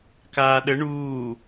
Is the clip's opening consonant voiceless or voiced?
voiceless